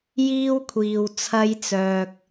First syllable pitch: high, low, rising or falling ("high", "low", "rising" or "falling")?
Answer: high